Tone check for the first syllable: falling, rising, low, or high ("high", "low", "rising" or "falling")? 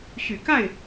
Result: low